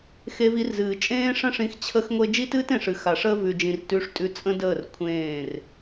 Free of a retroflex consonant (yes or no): no